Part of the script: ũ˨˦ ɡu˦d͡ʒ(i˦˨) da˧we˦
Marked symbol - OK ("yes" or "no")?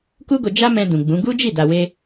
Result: yes